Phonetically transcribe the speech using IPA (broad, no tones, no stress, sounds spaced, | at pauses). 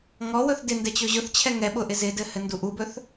ŋ ɔ w ɵ θ d ɪ n d ɛ t͡ɕ ɵ ʑ ʊ θ t͡ɕʰ ɛ ŋ ɛ ɓ ʊ ʔ ɪ z ɪ d ɘ h ɘ n d u ʔ u b ɵ θ